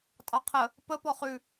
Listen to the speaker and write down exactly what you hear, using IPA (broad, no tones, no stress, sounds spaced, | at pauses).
tʼ ɑ qʰ ə | p ə p ɔ χ ʉ